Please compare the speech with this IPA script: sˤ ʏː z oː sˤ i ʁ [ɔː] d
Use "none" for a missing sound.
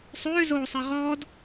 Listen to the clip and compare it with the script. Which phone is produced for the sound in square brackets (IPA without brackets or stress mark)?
ɔː